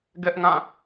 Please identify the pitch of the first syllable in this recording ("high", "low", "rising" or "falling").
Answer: high